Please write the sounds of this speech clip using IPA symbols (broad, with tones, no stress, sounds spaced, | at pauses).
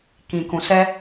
k ĩ˨ k ũ˨ s ɛ˧